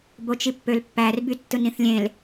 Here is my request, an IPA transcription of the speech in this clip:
b o t͡ʃ i pː ø l pː æ r b y tː ɯ n ĩ θ lʲ ẽ l

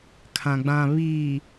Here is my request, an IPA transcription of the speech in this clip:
kʰ ã˨ ɡ͡b ã˨ β iː˨

